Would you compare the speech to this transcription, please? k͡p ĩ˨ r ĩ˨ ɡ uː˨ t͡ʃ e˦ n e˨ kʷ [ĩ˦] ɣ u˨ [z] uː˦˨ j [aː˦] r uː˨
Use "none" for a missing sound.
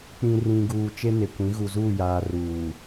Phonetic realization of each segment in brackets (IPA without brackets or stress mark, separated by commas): ĩ˨˦, z, aː˨